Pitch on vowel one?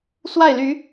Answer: falling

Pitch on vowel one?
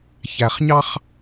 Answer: low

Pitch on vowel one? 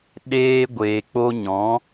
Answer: high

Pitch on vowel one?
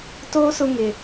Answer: high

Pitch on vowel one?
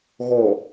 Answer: low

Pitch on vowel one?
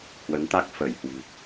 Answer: rising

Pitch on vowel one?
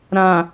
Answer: low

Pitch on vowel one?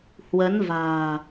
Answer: rising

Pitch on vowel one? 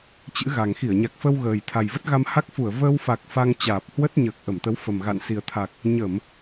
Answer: rising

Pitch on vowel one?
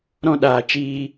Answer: high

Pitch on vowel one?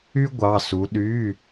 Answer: high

